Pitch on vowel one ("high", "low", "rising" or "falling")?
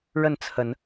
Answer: falling